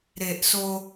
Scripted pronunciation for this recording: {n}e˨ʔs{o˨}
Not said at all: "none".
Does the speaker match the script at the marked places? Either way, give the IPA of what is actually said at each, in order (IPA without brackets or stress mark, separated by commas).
ɾ, o˦